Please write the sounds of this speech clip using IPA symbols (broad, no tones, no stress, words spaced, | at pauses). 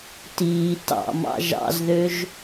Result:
tiː tɑ̰mɑ̰ ʒɑ̰zðøʒ